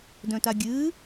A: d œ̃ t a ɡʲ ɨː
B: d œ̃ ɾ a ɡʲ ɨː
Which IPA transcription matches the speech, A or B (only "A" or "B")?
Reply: A